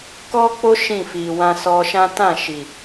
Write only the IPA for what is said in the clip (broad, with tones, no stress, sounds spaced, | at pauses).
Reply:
k ɔ˦ k͡p o˦ ʃ ĩ˦˨ f i˨ w ã˧ s ɔ˧ ʃ ã˦ t ã˦˨ ʃ i˨